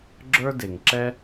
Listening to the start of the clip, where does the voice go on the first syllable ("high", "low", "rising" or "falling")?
high